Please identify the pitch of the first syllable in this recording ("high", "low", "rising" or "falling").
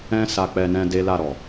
high